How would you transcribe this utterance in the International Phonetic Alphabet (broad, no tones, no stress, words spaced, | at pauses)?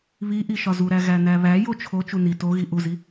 βiʔi ʃɒzuɾæ ɣænæβæ jot͡ʃʰo t͡ʃuni toɣi ʔuzi